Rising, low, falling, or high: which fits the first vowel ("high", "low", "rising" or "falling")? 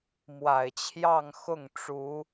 low